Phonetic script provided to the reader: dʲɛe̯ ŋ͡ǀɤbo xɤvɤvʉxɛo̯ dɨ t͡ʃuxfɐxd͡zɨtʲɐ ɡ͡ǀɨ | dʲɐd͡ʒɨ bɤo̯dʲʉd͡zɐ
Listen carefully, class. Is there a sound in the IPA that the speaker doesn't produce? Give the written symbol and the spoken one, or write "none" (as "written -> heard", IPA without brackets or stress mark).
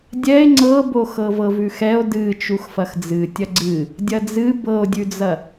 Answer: d͡ʒ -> d͡z